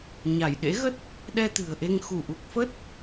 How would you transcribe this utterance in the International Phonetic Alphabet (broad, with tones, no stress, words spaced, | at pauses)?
ɲa˧˩j ɗḛ˧˥ɣə˦˥t̚ | ɗɛ˧t̪ɨ̤˨˩ə̯ʔe˧ŋ xu˧˩ʔu˨˩k̚fə˦˥t̚